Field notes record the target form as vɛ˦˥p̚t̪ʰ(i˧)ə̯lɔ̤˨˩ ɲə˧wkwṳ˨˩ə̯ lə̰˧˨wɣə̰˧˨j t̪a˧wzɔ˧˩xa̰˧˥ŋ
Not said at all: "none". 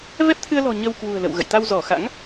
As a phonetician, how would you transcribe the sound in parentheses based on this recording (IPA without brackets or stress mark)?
ɨ˧